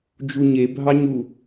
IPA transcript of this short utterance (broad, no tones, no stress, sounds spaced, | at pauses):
d͡ʒ u ɲ e bʱ ɑ ɲ u